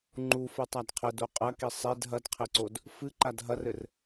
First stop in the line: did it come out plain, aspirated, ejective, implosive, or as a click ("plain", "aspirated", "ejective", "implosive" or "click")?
click